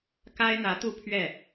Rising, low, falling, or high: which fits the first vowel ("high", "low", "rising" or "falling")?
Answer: high